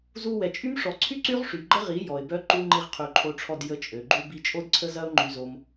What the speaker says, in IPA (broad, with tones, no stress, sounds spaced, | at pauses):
z u˧ w ɛ˨ t͡ʃʼ y˦ m ʂ ɔ˨ ǀʰ y˦ ǀ y˦ ʁ ʂ y˨ ɡ͡ǃ ə˦ ʁ i˨˦ j ɔ˨ ɪ̯ b œ˦ ǃ u˦ ŋ͡ǃ i˧ ʁ qʰ y˨ ǃʰ o˧ ʈ͡ʂʰ ɔ˧ d j ə˨˦ t͡ʃʼ ø˨ ɡ͡ǃ u˦ b i˧ t͡ʃʼ o˦ d ǀʰ ə˦ z ɐ˦ ʊ̯ ŋ͡ǃ y˧ z o˧ m